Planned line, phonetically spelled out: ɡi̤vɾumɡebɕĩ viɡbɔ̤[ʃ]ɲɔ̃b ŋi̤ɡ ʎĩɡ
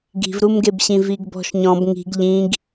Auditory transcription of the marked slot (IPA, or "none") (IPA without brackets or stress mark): ʃ